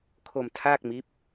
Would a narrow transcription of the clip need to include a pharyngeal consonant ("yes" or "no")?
no